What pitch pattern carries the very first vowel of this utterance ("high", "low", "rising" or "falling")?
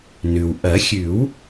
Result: low